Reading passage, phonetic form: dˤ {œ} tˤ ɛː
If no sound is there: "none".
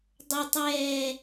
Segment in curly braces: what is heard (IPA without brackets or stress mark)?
œ